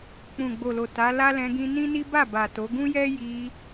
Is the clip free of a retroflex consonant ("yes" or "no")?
yes